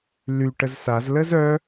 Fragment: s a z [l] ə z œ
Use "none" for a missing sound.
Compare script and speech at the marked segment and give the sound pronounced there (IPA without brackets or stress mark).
l